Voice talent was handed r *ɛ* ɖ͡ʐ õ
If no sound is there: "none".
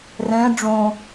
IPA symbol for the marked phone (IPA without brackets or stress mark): ɛ̃